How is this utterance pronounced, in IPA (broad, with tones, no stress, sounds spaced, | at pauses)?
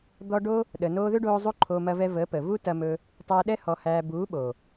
d̪ ɔ˧ ɖ o˦ | ɗ ə˨ n oː˧ ð ʏ˦ ɖ oː˧ zˤ u˦ ǃʰ oː˧ m ɐ˧ v ɛ˧ v əː˨˦ p əː˨ v u˦ t ɐ˧ m ɵ˧ | tˤ æ˧ ɗ ɛ˦ h ɔ˧ h æː˧ b uː˨˦ ɓ o˨